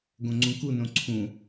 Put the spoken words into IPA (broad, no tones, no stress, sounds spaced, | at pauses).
ɡ õ ŋ͡ǀ ũ k u n õ ǀʰ ũ